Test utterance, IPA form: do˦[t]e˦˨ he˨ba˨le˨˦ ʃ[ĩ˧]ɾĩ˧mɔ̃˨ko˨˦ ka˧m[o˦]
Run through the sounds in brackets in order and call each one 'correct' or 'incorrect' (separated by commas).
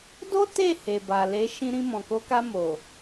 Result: correct, correct, incorrect